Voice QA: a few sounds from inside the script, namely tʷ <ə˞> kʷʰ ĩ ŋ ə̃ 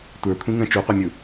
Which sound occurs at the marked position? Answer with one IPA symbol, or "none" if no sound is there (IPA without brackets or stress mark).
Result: ə˞